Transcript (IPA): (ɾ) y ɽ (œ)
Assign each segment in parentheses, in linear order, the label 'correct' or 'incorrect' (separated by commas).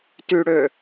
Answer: incorrect, incorrect